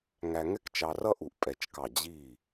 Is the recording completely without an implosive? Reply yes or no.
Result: yes